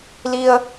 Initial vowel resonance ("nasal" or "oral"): oral